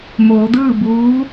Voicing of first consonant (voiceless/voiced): voiced